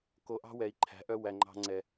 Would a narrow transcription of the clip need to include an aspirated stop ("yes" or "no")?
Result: yes